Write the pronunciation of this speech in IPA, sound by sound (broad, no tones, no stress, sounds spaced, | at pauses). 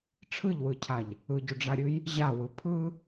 ʈ͡ʂʰ ɯ ʎ w ɯ cʰ a ʎ | ɯ ɟ u ɖ͡ʐ a ɾʲ ɯ j | ʑ a w ɯ pʰ ɯ